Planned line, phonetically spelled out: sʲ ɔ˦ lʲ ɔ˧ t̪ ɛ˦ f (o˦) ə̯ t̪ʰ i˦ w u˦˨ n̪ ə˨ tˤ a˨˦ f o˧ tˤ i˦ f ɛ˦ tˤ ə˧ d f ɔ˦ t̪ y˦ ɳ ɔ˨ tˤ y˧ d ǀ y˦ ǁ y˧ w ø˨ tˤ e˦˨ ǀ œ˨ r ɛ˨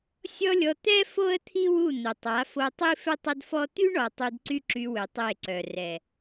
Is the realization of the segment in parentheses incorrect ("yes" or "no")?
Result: no